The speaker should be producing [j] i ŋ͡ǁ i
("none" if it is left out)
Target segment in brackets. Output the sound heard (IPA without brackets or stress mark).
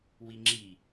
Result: w